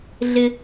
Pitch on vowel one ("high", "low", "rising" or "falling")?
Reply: high